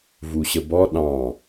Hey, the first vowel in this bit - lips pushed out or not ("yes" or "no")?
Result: yes